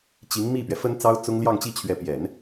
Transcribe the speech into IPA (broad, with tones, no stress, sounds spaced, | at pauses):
t͡ɕ i˧˥ ŋ m i˥˩ p ɥ ɛ˩ f ə˥ n t͡s ɑ˥ ʊ̯ t͡s ʊ˥ ŋ l j ɑ˥˧ ŋ t͡ɕ i˥˩ t͡ɕʰ ɥ ɛ˧˥ p j ɛ˨˩˦ n